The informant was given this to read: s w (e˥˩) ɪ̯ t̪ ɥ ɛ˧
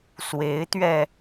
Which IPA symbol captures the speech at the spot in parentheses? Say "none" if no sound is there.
e˧˥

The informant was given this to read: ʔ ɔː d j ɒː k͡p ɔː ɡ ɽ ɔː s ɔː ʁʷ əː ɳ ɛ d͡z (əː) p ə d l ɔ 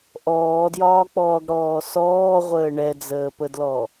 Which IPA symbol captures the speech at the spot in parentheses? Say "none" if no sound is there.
əː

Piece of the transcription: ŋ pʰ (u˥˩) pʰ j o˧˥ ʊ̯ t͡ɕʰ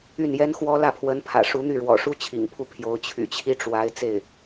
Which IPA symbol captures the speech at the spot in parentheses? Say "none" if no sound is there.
u˥˩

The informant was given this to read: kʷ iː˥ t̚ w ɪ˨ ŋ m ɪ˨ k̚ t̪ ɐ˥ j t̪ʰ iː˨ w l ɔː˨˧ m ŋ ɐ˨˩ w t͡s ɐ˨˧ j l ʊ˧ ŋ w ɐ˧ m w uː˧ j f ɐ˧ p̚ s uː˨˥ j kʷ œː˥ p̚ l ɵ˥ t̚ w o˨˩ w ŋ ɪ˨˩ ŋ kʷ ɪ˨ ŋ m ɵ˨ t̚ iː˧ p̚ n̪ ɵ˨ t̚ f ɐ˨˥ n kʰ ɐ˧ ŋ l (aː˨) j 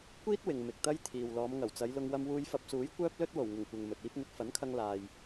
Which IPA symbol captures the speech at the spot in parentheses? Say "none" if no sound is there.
aː˨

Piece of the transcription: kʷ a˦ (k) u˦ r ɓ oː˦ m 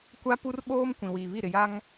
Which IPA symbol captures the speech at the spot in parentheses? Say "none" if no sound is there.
p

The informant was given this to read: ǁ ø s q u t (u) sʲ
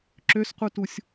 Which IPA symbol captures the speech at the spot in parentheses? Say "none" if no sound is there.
u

